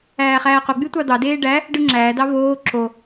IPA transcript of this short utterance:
æː χ æː q o ɡ͡b y tʷ ɑ d̪ ɑ d eː ɖ æ | ɖ ɯ ŋ͡ǁ æː d ɑ v oː ǁ o

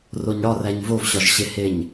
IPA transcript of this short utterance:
r o ɲ ɽ ɒ r æ ɲ v o v ɕ ɒ ʒ ɕ e h e ɲ

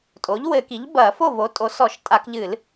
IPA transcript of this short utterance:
tʼ o˩˥ ʎ w ɘ˧˩˧ k i˩˥ ʎ b ɐː˧˩˧ f o˥˩ v o˩˥ tʼ o˩˥ s ɔ˧˩˧ ʃ tʼ a˧˩˧ k ʎ ɨ˧˩˧ l

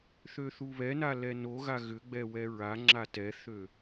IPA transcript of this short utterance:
θ ø θ u β ɛ n a l ɛ n o ɣ a ɣ ʏ ɡ͡b ɛ w ɛ ɹ a ŋ͡ǁ a t ɛ θ ø

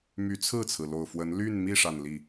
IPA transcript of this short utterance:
m y˧˥ t͡sʰ ɹ̩˥˩ t͡sʰ ɹ̩˩ l o˨˩ ʊ̯ f w ə˧˥ n l y˥˧ n m i˥˧ ʂ a˥˧ n l i˥˩

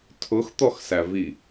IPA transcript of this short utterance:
tʰ ʊ x t̪ ɔ x s æ v i

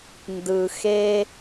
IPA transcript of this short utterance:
n d ɯ˨ x e˦

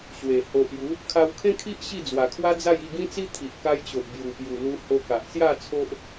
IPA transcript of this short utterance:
ɕ w e˨˩ h o˨ ʔ j u˨˦ | kʰ a˧ w kʰ ẽ˦ kʰ i˦ ʔ ɕ i˥˧ d͡z w a˨˩ kʰ w a˦ d͡z a˥˧ j i˥˧ ɡ ĩ˦ t͡s i˦ t̪ʰ i˨ ʔ k a˧ j t͡ɕ o˨ ʔ b j u˨˩ p j u˨˩ l u˧ h o˧ k a˨ ʔ s j a˥˧ t͡sʰ o˦ ʔ

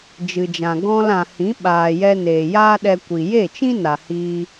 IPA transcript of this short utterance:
d͡ʒ ɨ˨ d͡ʒ ã˨ ɡ ɔ̃˧ l ã˨ h ĩ˨˦ ɓ aː˨ j ɛ˧ n eː˨ j aː˦ ɗ ɛ˧ kʷ i˨ j e˦˨ t͡ʃ ĩ˦ n a˨ h iː˧

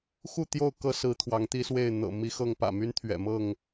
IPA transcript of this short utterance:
x u˥˨ t̪ j o˥˨ ʊ̯ k ɤ˦ s ɹ̩˨˦ t̪ʰ w ɑ˨˦ ŋ t̪ i˦ s w e˥˨ ɪ̯ n̪ ɤ̰˨˩ m i˦ x ɤ˥˨ ŋ p ä̰˨˩ m y˦ n t̪ʰ ɥ ɛ̰˨˩ m ɤ˥˨ ŋ

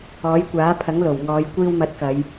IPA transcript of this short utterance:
ɔː˨˥ j kʷ aː˨˥ pʰ ɐ˨˥ ŋ l o˨˩ w ŋ ɔː˨˧ j kʷ iː˧ w m ɐ˨˥ t̚ k ɐ˨˧ j

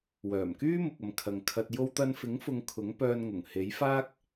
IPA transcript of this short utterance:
w œː˨˩ m k yː˥ m ʊ˨ k̚ ɐ˨ m kʰ ɐ˨ ŋ kʰ ɐ˨ t̚ j o˧ w t̪ ɐ˧ n f ɪ˨˥ ŋ f ʊ˧ ŋ kʰ ʊ˨˥ ŋ p œː˧ n ŋ ʊ˨˩ ŋ h e˨˥ j f aː˥ k̚

